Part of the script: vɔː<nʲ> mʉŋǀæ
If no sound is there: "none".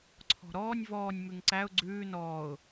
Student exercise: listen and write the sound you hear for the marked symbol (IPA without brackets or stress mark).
nʲ